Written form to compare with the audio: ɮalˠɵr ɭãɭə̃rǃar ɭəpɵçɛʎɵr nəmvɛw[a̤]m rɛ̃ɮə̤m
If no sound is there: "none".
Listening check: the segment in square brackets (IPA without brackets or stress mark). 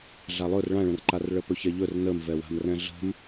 a̤